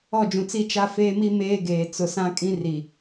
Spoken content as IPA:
ɔ˦˨d͡ʒũ˨t͡si˦ t͡ʃa˦feː˦mi˦ meː˦ɡeː˨ t͡sʊ˨sã˦ kʼĩ˦ri˨

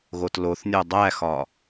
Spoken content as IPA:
ɣotloθnʲo dˤæxɒ

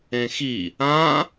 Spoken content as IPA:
ẽxi | ã

